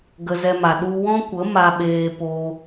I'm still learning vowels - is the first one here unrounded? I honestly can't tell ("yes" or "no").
yes